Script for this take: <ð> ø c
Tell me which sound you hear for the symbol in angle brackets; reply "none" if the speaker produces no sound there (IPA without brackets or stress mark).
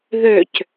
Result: ð